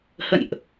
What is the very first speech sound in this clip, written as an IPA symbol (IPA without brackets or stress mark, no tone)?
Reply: h